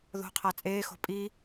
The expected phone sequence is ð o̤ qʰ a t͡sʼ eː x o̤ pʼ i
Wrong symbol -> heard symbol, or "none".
none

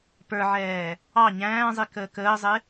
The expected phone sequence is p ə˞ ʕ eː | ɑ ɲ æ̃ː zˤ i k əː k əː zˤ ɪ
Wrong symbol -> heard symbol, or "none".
eː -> ɛː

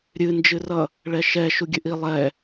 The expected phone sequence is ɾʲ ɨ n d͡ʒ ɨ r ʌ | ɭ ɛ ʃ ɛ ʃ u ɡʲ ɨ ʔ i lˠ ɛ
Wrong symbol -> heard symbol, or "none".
none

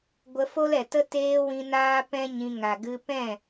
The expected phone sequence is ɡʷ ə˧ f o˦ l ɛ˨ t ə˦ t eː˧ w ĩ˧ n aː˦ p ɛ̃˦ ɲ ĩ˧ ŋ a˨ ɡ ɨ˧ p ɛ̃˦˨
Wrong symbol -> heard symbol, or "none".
none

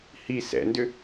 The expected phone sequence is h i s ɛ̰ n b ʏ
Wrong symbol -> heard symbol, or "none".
b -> d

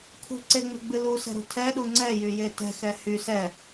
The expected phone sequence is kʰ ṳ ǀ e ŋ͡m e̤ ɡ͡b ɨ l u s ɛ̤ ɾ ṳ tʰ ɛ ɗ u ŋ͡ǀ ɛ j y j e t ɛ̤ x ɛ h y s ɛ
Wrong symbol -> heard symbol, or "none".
none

